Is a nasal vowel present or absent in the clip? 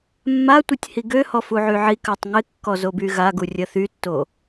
absent